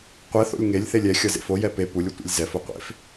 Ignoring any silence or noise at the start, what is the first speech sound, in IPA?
qʷ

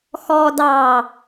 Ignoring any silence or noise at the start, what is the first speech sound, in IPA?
x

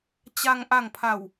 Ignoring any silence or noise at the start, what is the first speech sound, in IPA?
t͡ɕ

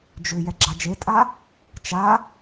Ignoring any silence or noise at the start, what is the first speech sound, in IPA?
d͡ʒ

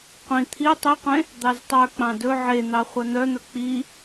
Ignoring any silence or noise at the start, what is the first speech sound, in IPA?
qʷ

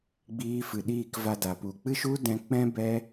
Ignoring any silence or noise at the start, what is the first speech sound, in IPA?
ɡ͡b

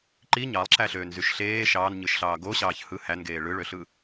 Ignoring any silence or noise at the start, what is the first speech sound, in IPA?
ǃ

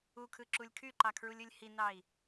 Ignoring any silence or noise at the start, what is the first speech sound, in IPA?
u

